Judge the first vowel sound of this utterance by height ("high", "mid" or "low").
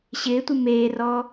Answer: high